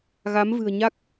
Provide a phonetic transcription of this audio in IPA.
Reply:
ɣa˨˦mvɨ̤˨˩ə̯ɲa˦˥k̚

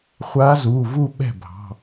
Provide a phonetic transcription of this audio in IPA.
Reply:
χʷa˧˥zu˩˧˩ vu˥˧ɓɛ̤˥˩bʱɑ̤˩˧˩

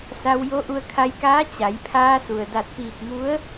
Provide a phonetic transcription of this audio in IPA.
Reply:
sa˧w jo˧˥ʔu˧ə̯ kʰa˧jkaː˧˥ t͡ɕa˩˧jpʰaː˧su˩ə̯ da˧˩t̚piː˧˩k̚ŋu˧˥ə̯

